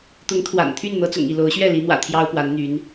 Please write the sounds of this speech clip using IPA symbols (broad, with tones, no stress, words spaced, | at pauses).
t̪ʊ˨˦ŋt̪ʰwa̰˨˩n t̪ʰy˥˨nn̪ɤ˨˦t͡sʊ̰˨˩ŋ i˥˨lo˨˦ʊ̯ɕɥɛ˥˨ li˨˦n̪wä̰˨˩ t̪ʰjɑ˦ʊ̯pwa˨˦nn̪y˨˦n